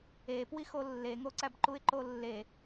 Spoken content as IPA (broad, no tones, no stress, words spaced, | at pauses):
epwixo lːeŋoǀæb ǃuɪ̯ǃolːe